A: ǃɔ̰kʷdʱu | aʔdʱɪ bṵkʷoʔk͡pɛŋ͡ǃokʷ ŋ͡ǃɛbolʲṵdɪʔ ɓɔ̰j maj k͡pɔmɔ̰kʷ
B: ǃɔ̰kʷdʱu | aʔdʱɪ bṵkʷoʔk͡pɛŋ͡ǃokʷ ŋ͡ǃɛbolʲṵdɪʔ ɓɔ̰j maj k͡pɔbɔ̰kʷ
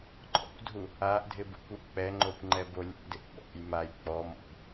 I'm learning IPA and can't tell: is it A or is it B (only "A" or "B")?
A